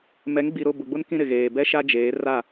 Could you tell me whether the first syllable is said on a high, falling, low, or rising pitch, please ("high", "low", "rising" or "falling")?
rising